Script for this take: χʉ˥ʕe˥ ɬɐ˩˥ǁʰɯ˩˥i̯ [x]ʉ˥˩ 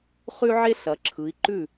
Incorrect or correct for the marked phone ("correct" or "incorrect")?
incorrect